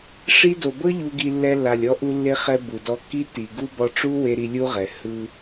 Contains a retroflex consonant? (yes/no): yes